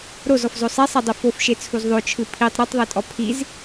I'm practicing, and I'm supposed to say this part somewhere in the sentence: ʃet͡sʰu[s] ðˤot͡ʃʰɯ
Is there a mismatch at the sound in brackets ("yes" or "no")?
yes